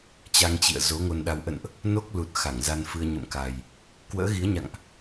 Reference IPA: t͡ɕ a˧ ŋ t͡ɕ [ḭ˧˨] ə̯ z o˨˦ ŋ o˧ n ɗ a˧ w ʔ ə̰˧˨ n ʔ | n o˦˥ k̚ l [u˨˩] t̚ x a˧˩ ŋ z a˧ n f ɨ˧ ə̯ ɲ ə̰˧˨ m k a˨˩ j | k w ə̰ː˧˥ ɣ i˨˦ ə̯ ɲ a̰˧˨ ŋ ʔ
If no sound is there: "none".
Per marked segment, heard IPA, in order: ḭ˧˨, u˨˩

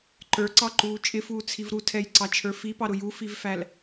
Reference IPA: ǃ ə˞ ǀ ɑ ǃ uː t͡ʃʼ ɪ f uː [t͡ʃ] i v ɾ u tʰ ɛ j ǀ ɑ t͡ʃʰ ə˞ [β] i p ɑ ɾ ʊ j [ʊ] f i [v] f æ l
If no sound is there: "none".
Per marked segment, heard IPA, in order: t͡sʰ, f, u, v

